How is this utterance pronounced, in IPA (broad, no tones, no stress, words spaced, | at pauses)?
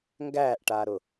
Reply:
ŋɡæːʔʈaːɾʊ